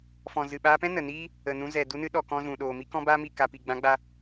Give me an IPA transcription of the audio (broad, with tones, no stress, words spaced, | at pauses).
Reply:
fɔ̃˨zɨ˨ɓaː˧pɛ̃˦ nə˨niː˦ | ə˨nũ˧ zɛ˨ du˧nɨ˧ɗɔ˨ kɔ̃˧zũ˨ ɗoː˨mi˧ kɔ̃˦baː˦mi˦˨ ka˨ pi˨ ɡ͡bã˨˦ɡ͡ba˧